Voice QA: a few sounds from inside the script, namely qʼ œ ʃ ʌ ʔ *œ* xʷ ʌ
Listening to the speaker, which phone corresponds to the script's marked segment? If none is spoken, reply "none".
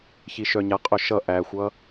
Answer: æ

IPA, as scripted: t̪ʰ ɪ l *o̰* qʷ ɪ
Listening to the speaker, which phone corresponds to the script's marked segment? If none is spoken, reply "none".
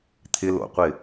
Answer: o̰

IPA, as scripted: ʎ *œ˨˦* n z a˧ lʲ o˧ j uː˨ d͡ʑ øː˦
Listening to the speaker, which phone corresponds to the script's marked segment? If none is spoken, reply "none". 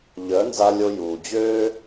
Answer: œ˨˦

